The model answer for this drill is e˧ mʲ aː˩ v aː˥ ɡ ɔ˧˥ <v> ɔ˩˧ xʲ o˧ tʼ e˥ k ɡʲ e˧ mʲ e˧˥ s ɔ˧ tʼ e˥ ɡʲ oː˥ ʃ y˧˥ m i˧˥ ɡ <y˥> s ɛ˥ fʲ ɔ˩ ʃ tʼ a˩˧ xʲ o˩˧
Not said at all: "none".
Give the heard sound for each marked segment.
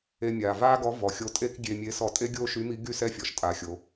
v, y˥

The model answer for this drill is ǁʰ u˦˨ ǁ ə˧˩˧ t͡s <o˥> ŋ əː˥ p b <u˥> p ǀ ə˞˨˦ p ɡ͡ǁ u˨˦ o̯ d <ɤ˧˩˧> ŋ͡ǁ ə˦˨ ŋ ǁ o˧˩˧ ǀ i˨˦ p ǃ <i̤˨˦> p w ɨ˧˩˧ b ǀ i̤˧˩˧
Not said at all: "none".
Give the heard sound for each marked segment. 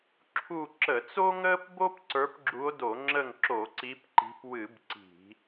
o˥, o˥, o˧˩˧, i̤˨˦

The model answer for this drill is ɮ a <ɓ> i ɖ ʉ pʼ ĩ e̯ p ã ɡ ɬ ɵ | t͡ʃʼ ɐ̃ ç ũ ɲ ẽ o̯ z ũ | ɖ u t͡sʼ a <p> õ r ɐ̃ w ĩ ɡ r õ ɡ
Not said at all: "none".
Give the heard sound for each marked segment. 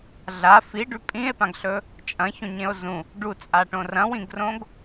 f, ʈ

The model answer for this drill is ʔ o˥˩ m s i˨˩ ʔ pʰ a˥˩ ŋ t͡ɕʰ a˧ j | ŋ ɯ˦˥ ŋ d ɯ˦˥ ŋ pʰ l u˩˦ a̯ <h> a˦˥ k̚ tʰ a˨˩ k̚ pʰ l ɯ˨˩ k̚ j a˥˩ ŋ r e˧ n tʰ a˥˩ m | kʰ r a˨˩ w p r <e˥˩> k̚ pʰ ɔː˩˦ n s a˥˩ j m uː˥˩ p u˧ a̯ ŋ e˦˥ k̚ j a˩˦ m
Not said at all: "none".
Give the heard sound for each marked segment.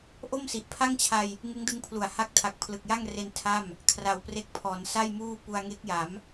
h, e˦˥

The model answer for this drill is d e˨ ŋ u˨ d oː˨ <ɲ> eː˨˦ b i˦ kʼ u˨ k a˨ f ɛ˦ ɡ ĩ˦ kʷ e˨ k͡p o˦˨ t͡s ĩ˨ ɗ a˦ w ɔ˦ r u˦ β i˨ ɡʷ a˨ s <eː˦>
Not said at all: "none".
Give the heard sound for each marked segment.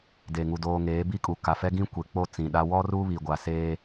ŋ, eː˦

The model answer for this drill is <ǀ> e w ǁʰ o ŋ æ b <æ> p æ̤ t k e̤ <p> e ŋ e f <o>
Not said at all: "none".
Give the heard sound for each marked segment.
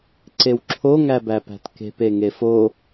ǀ, æ, p, o

